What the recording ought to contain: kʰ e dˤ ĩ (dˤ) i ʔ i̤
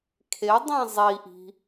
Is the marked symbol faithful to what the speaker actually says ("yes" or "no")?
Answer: no